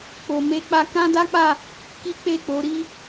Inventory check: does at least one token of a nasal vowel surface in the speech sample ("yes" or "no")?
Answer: yes